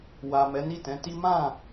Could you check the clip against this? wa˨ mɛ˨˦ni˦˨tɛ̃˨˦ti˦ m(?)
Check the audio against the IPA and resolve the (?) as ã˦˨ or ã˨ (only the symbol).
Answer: ã˦˨